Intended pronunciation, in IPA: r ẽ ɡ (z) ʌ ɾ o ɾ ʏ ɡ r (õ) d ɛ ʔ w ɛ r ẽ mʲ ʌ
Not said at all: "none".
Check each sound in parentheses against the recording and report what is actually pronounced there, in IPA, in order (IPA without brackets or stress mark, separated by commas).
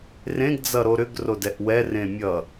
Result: d͡z, o